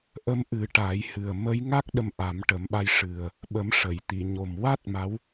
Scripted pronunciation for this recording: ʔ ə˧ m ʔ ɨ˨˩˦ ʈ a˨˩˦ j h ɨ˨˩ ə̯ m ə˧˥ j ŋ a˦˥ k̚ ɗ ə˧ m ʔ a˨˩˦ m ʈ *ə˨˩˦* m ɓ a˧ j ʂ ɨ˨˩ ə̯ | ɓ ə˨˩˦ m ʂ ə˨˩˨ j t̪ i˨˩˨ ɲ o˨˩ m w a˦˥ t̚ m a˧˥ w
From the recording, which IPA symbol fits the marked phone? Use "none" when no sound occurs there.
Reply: ə˨˩˦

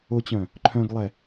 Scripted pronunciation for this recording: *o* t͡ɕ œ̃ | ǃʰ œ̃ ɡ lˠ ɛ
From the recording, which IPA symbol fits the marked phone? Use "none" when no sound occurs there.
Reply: o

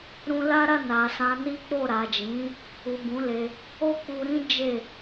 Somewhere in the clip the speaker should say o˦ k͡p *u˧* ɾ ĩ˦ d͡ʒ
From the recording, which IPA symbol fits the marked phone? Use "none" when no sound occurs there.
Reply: u˧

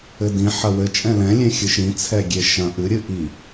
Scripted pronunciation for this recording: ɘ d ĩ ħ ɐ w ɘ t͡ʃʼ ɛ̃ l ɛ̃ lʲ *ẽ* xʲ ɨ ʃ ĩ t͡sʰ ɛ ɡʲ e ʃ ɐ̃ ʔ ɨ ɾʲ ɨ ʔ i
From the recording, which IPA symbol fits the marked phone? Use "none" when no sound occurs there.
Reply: ẽ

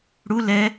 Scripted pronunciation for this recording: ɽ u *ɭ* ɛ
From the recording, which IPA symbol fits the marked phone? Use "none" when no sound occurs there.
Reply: l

